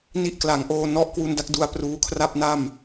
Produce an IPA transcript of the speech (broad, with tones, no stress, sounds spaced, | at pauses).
n i˦˥ ʔ k l a˩˦ ŋ ʔ oː˧ n ɔ˦˥ ʔ k w u˧ n d a˥˩ k̚ d u˧ a̯ p r uː˧ kʰ r a˥˩ p̚ n a˥˩ m